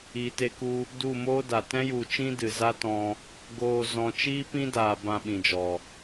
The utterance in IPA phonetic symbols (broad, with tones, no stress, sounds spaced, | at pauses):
iː˨ t e˧ k u˧ | d u˦˨ m oː˦ d a˨ t ɛ̃˦ j u˨ t͡ʃ ĩ˦ d ɨ˨ z a˦ t ɔ̃˧ | ɡ oː˨ z ɔ̃˨ t͡ʃ iː˦ p ĩ˦ d aː˨ b ã˧ ɓ ĩ˨ d͡ʒ ɔ˨